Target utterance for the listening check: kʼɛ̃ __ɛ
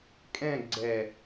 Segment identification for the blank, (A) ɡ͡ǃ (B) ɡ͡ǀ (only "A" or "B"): B